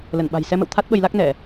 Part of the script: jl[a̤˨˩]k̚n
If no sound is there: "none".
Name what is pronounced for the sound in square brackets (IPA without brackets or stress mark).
a˦˥